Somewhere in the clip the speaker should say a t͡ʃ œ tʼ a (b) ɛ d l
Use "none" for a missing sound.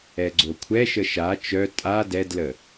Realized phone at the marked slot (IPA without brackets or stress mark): d